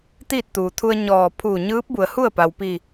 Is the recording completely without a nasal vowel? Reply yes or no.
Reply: yes